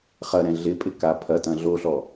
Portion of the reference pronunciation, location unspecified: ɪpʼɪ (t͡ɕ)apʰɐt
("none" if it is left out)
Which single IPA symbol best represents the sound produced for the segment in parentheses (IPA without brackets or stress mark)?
k